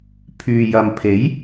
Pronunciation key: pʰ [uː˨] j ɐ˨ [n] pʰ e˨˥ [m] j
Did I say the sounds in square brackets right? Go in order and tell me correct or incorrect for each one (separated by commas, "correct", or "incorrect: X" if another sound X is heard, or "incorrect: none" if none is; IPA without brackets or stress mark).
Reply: incorrect: yː˨, incorrect: m, incorrect: none